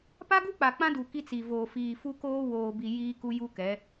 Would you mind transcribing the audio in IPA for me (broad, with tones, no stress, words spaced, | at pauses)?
pa˦ɡu˦k͡pa˨ k͡pã˦du˨ ki˦t͡si˨voː˨ fiː˨fu˦koː˦ woː˨bi˨ jiː˦ku˦ ju˦kɛ˨˦